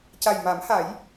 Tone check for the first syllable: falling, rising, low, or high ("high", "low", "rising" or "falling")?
low